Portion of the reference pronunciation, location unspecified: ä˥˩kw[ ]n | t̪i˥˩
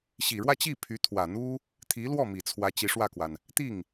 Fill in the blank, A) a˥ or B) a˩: B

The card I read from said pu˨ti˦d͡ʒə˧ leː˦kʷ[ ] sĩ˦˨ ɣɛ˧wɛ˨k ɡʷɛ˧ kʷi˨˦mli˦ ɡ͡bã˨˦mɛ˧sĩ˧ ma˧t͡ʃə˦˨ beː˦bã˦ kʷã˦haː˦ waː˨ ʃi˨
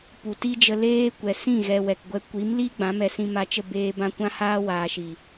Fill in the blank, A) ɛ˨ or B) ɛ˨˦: A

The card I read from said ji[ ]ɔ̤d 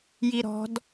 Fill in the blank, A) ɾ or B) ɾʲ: A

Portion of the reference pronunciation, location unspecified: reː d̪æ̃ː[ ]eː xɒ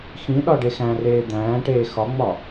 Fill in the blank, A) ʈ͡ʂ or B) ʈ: B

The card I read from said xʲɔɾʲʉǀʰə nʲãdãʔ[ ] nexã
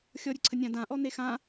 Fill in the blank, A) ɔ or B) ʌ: A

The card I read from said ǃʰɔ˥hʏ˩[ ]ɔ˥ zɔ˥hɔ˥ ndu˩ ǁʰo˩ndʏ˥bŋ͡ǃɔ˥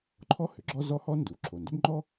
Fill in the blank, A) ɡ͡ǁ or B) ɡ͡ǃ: A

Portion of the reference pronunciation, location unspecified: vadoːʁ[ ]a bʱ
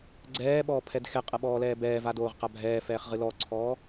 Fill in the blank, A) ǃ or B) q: B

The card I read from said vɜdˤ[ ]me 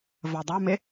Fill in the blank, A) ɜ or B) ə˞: B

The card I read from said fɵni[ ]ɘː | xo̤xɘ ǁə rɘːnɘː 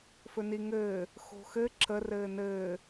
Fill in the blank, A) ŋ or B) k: A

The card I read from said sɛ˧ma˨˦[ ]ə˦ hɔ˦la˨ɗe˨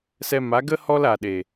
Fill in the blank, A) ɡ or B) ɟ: A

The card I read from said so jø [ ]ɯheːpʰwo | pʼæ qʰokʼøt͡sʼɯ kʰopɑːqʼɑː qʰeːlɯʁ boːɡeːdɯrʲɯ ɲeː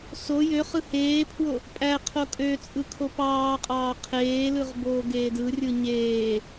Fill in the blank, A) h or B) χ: B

